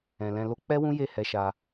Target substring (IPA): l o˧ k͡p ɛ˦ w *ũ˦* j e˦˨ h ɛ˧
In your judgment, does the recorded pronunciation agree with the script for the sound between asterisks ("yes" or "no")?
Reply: yes